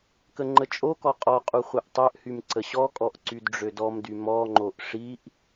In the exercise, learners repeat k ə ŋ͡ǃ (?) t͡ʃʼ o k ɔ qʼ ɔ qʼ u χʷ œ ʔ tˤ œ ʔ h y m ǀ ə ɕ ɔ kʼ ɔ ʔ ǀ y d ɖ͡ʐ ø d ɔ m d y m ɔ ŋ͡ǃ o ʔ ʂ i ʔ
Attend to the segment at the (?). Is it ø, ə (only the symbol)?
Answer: ə